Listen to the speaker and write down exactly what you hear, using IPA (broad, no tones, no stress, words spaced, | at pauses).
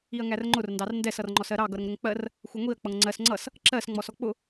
iɐ̯ŋærŋ͡ǃʊr ndɑrndɛs ʌrŋ͡ǃɔsɜɾɑ ɡʌɾəŋɾʊŋk͡pɜr | xʷʌŋʷiɐ̯ k͡pʌŋŋ͡ǀɜs ŋ͡ǀʌs | ǁɜs ŋ͡mɔsɔk͡pʊ